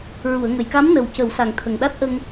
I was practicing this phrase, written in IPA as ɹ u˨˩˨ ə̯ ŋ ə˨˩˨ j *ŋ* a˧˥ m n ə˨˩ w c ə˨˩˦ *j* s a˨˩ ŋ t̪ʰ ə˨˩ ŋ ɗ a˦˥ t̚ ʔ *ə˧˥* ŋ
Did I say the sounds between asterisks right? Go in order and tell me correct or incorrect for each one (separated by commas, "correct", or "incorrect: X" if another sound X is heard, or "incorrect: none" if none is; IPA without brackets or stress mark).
incorrect: k, incorrect: w, incorrect: ə˧